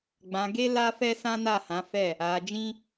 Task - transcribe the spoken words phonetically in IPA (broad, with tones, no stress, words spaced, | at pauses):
ɡ͡bã˧ɡe˦ la˦fɛ˦ sã˦na˦˨hã˨˦fɛ˦˨ | a˧ d͡ʒĩ˦